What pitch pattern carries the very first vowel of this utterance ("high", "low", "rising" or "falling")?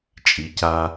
low